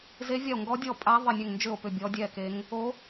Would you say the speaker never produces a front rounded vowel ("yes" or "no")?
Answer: no